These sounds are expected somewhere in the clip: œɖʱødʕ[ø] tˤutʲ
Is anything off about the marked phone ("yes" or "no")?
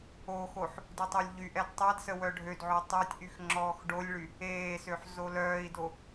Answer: no